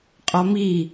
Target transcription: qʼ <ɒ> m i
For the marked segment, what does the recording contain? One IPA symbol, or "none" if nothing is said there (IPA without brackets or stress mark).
ɒ